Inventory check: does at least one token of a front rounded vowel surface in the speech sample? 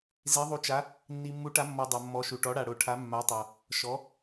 no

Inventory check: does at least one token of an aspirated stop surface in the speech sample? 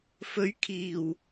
yes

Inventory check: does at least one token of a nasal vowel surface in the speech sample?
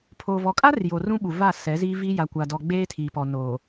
yes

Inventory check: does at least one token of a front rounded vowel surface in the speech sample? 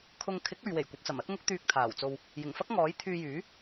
yes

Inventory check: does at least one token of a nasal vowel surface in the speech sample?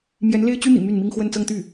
no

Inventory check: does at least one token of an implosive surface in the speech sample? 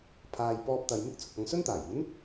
no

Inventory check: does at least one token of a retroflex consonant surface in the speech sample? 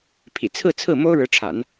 yes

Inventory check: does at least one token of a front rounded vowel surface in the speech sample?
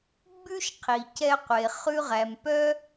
yes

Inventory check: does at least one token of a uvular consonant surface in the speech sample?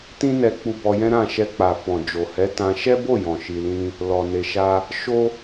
no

